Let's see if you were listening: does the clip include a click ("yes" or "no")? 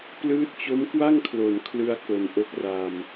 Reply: no